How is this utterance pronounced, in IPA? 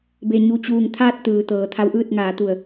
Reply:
be˩ɲu˧˩ t͡ɕuː˧˩ŋ t̪ʰaː˥˨t̚t̪ɯː˩ t̪ɤː˩˧t̪ʰa˧˥wʔɯː˥˨t̚ ŋaː˩˧t̪u˧˩ə̯

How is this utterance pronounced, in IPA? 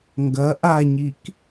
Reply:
ŋɡɐ ʔaɲik

